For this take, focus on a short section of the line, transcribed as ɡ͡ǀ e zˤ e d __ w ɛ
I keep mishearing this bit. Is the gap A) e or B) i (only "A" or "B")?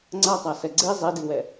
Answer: B